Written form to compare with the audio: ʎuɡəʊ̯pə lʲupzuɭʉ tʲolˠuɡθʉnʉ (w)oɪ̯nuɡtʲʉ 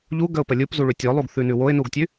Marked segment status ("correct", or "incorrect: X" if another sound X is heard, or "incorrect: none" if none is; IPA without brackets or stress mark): correct